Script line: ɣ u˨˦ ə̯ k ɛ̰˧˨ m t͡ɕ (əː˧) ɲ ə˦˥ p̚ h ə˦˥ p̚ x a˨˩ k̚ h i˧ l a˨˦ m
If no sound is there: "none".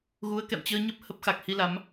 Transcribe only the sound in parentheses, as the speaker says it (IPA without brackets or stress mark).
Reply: əː˧